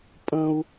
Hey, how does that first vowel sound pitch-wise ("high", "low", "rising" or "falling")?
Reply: low